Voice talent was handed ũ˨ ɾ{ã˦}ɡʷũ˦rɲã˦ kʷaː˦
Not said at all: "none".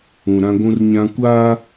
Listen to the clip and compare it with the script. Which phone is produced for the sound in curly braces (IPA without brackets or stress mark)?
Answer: ã˦